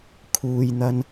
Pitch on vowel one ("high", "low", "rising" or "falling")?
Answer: low